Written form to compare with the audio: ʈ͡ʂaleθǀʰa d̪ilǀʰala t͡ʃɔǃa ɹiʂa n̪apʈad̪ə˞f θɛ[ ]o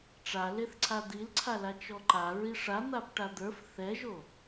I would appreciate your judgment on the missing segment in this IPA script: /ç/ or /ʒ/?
ʒ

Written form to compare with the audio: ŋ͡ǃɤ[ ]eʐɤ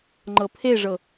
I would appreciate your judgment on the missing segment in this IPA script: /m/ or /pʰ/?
pʰ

